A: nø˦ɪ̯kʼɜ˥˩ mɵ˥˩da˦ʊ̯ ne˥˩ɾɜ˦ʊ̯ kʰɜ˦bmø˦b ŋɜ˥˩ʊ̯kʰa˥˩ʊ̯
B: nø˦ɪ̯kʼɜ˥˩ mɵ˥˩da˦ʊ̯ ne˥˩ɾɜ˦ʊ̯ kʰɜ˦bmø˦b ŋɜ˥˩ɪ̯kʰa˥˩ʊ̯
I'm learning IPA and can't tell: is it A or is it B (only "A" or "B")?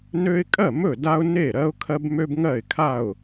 B